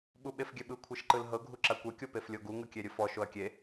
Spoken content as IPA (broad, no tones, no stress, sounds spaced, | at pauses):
ɓ u ɓ e f ɡʲ ɛ ɓ ɯ kʷʰ ɛ ʃ ǃ ɯ l ɦ ɤ ɡʱ u ǁ a kʷ ɛ kʲ o p e f lʲ o ɡ u ŋ ɯ kʲ e ɾʲ ɯ f ɔ ʃ o ɐ̯ kʲ e